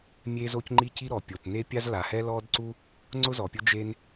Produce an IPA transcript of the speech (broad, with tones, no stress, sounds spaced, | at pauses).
mʲ e˥ z o˥ c ŋ͡ǃ i˥ c i˥ ɾ ɔ˩ pʲ o˩ t n e˥ pʲ a˥ z l a˩ h ɛ˥ l ɔ˥ d ǀ u˥ | ŋ͡ǀ ʊ˥ z ɔ˩ pʲ ʊ˥ d͡ʒ e˥ n